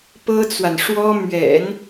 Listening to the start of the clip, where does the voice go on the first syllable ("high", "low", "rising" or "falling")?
high